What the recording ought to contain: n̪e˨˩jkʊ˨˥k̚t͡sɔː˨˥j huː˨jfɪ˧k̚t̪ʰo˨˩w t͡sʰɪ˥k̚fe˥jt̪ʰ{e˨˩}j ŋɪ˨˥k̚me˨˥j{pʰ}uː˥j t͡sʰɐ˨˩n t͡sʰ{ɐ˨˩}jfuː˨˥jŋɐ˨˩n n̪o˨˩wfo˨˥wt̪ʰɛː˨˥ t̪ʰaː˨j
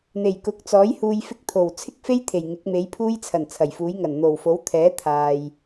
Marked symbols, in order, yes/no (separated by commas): yes, yes, yes